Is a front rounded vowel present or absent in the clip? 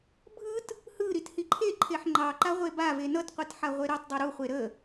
absent